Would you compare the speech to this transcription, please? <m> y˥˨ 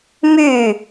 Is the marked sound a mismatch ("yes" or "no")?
no